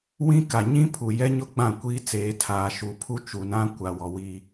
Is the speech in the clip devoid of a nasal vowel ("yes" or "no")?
no